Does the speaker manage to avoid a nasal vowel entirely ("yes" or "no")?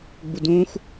no